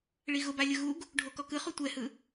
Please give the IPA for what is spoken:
ɭ i ɣ ʊ b a lʲ ʊ ɣ u ɡ | ɖʱ o k ɔ k ɯ χ u tʷ ɛ h ɯ

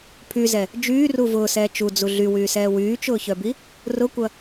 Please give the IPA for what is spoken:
pʰ y z ɛ | d͡ʒ yː r u v ʊː s ɛː t͡ʃ u d͡z u ɮ y w yː s ɛː w yː t͡ʃ ʊː ç œ b i | r ʊ kʷ ɐ

